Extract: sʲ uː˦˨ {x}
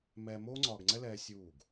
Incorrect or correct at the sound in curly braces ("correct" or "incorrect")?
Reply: incorrect